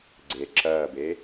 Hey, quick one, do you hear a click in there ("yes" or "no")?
yes